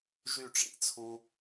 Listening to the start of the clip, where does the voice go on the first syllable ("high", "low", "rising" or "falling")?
falling